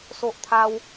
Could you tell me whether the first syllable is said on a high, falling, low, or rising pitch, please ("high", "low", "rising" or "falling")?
high